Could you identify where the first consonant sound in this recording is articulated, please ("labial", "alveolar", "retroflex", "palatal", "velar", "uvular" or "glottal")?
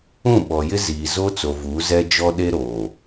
labial